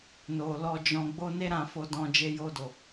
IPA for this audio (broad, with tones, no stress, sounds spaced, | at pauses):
n o˨ l ɔ˧ d͡ʒ ɔ̃˧ ɡ͡b o˧ n e˦ ɾ ã˦˨ f o˧ d ɔ̃˧ d͡ʒ e˧ j o˧ d o˨